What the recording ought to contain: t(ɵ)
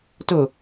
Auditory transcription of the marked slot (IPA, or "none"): ɵ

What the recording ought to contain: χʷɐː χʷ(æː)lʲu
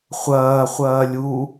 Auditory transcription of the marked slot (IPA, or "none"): ɐː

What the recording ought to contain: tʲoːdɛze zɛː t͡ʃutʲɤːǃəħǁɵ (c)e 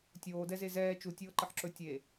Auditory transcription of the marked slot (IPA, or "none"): tʲ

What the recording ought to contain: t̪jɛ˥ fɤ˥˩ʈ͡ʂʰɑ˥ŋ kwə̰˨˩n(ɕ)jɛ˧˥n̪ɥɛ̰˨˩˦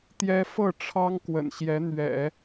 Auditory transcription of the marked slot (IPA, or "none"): ɕ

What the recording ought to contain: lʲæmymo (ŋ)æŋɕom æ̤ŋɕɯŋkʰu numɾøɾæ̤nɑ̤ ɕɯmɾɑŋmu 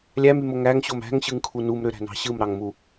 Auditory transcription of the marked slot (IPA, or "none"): ŋ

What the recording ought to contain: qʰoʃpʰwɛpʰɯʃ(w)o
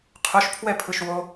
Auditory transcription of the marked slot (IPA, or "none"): w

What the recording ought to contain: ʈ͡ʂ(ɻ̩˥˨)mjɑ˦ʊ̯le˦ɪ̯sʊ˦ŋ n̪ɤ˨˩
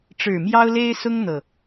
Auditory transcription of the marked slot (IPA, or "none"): ɻ̩˨˩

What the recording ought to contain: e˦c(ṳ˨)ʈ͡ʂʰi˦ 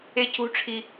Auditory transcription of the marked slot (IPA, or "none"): ṳ˦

